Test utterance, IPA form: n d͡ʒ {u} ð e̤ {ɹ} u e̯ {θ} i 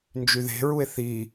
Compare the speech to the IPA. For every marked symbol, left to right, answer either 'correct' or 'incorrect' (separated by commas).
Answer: incorrect, correct, correct